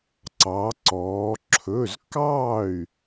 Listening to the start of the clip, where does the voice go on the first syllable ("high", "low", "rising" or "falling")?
rising